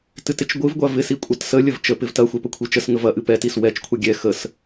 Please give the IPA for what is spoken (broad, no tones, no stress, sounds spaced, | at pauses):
t ɨ t ɪ t͡ʃ ɡʷ ɨ v ɡʷ a v ɪ s i kʷʼ ɐ t s ə lʲ ə v t͡ʃ ə p ɪ v t ɐ xʷ ɛ p ə kʷʰ i t͡ʃ ə s ŋ ə v ɐ ʔ ɨ p ɛ t i s w ɛ t͡ʃ kʷʰ ɐ ɡʲ ɛ x ə s